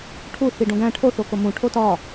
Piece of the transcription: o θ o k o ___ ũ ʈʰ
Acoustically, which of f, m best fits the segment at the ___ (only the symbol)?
m